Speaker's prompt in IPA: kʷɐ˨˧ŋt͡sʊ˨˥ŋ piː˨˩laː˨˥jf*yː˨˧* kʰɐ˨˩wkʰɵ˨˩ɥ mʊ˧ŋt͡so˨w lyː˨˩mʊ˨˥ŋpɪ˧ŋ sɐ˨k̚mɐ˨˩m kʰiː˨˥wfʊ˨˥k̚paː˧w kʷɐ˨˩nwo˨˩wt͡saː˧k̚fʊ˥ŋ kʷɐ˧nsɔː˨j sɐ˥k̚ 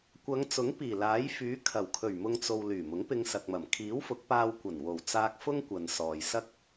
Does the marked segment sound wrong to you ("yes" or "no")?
yes